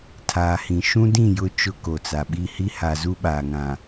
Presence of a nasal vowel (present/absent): present